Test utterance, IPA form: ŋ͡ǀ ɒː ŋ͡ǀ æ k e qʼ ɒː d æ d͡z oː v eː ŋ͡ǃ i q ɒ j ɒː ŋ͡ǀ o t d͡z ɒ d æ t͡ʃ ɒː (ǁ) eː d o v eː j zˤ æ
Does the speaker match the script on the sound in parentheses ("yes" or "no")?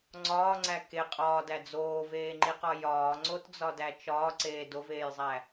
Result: no